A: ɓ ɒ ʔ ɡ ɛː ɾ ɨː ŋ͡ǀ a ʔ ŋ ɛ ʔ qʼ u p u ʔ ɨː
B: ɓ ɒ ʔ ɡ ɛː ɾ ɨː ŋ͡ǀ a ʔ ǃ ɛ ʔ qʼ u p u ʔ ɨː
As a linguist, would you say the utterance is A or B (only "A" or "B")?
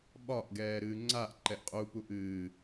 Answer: B